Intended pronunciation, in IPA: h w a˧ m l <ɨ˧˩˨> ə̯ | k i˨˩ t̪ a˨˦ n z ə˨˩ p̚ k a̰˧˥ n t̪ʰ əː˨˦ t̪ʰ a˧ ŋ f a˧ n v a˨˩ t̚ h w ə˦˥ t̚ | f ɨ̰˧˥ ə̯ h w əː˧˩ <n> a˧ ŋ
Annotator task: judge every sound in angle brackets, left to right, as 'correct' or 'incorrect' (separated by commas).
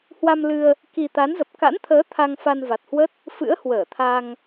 incorrect, incorrect